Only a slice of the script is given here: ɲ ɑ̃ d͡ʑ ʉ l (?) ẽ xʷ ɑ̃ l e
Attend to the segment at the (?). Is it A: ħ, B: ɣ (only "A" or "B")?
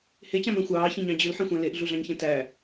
A